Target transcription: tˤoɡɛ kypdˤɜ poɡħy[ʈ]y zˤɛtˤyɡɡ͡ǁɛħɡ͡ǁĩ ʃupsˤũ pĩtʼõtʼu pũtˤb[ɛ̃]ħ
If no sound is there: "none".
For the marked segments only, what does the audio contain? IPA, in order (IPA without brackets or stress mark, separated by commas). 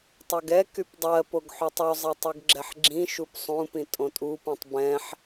tˤ, ɛ̃